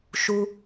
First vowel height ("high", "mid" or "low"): high